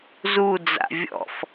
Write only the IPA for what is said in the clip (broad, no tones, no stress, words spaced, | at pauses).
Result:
zu d͡za̰vʲɔ̰f